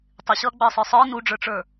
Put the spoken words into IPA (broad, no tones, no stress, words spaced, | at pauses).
tˤɪɕʌːɡ͡bəːsˤə˞ sˤə˞ nuɖ͡ʐə˞ʈ͡ʂə˞